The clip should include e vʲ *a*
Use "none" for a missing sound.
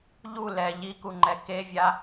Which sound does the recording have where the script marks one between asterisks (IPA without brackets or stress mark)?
a